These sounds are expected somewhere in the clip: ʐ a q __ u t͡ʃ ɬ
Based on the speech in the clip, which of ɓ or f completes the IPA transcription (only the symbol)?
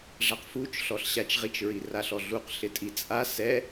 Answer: f